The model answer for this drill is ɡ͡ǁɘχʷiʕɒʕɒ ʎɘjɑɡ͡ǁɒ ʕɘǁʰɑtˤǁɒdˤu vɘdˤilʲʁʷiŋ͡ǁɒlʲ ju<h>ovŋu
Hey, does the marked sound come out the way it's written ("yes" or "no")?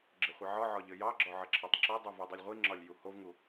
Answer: yes